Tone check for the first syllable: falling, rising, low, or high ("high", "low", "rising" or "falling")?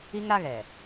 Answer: high